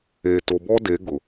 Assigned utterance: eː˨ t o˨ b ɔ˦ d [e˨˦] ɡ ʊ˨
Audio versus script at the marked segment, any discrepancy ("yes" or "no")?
no